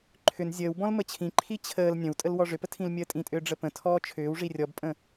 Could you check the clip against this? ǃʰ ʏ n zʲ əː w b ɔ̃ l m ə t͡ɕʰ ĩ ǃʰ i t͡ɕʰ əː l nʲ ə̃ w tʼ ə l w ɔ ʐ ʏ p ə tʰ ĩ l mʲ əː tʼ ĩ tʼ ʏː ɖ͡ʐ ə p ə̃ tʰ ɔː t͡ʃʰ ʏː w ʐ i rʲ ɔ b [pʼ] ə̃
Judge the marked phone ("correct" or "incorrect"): correct